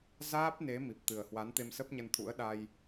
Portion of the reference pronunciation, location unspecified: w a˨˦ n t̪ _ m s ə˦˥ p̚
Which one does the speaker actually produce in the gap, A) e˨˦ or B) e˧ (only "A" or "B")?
B